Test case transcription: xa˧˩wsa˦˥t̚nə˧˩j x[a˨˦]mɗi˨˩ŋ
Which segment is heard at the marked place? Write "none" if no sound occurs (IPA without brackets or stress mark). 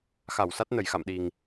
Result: a̰˧˨